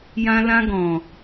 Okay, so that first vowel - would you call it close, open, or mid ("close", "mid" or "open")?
open